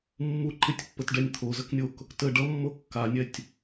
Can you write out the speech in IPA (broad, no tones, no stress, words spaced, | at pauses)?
mːu ǃɪtʲpːətɖɛnʲ t̪ʰozəknʲok | tə ɖʌmːo kːanʲɛtʲ